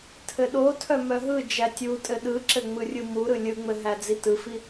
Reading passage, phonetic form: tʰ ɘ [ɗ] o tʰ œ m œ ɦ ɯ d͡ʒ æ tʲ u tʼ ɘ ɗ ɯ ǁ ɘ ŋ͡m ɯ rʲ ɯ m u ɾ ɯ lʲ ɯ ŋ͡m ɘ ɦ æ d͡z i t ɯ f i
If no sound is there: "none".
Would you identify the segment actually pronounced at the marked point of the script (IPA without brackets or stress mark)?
ɗ